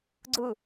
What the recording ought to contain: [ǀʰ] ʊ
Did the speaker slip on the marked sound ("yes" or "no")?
yes